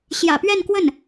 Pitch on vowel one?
low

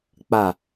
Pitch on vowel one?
falling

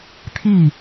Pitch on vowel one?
falling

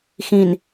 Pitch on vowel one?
low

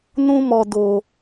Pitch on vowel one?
high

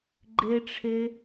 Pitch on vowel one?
high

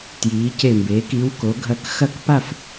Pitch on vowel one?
rising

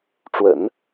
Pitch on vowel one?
low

